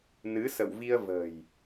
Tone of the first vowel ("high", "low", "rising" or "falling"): rising